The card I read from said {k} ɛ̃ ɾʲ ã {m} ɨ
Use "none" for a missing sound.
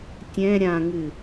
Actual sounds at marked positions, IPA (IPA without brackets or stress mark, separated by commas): tʲ, ŋ